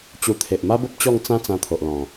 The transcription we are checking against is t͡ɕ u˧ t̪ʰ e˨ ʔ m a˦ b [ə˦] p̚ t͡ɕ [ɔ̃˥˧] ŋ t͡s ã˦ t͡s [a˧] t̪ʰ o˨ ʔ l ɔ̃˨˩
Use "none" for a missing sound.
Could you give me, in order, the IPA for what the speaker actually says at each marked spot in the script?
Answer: ə˦, ɔ˥˧, ã˧

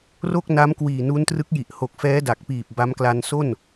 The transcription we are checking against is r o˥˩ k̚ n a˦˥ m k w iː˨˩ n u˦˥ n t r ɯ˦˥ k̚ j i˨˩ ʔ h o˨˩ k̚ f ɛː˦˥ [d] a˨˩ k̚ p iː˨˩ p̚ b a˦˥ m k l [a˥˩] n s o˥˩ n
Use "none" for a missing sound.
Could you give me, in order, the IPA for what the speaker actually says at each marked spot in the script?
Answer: d, a˧

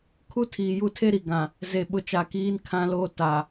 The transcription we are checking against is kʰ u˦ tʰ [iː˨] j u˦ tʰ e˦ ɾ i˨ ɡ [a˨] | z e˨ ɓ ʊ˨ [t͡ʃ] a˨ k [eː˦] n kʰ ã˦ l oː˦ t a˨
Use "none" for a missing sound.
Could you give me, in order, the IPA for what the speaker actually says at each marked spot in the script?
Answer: iː˨, ã˨, t͡ʃ, iː˦

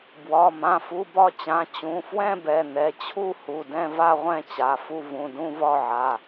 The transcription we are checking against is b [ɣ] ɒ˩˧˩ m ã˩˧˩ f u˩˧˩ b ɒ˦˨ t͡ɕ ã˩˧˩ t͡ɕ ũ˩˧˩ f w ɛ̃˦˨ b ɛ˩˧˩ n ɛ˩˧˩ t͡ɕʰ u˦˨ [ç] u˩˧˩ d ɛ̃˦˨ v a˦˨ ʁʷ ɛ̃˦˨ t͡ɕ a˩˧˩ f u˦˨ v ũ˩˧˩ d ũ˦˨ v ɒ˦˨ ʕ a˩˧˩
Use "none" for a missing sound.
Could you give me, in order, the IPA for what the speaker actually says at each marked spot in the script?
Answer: w, h

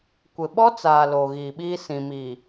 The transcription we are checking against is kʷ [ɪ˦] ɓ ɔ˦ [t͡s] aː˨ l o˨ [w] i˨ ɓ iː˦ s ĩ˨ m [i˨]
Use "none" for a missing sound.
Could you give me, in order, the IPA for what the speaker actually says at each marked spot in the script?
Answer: ɪ˨, t͡s, ɣ, i˨

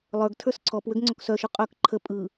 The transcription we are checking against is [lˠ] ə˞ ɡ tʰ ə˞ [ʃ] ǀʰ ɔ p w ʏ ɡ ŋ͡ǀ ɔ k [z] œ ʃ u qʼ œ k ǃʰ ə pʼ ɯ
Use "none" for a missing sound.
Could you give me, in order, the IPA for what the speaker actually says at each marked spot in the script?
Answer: lˠ, s, s

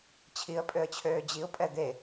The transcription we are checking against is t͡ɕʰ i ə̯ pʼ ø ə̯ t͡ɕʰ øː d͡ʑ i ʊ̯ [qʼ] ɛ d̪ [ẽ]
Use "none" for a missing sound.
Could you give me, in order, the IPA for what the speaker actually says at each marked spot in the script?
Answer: pʼ, e

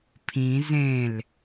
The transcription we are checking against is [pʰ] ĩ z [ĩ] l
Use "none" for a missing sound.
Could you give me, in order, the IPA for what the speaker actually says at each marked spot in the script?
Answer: pʰ, ẽ

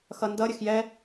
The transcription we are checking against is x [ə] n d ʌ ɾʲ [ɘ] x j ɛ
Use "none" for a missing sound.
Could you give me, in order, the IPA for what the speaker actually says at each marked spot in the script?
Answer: ʌ, ɘ

